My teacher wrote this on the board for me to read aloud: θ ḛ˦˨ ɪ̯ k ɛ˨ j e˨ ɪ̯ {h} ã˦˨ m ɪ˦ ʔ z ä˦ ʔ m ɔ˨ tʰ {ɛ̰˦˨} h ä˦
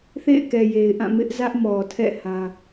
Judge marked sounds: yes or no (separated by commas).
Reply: no, yes